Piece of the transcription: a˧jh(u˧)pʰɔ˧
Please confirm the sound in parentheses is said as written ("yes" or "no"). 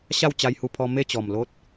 yes